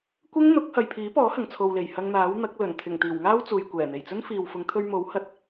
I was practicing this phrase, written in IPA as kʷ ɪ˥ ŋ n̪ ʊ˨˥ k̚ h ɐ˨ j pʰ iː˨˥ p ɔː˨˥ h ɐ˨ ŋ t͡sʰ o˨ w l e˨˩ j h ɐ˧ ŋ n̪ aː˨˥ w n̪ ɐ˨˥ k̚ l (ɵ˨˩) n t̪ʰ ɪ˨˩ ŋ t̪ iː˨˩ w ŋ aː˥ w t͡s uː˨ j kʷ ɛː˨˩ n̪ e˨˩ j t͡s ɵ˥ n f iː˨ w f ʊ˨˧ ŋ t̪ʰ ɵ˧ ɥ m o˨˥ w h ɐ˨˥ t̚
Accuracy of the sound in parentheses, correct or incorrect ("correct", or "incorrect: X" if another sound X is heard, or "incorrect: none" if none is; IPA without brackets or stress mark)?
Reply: correct